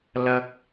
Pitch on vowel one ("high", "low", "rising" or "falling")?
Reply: high